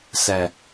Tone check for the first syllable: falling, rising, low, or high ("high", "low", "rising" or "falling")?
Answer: low